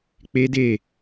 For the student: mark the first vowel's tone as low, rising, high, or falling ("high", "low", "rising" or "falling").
high